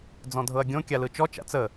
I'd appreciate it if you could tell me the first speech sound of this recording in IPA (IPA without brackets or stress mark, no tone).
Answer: d͡z